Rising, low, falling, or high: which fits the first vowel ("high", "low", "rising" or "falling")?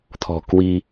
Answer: low